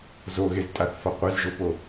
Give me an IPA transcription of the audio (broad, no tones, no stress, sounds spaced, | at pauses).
z o ɣ e z tʼ a θ f a qʷ e z ʒ o p o